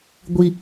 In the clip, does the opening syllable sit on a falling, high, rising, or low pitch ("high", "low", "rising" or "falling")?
high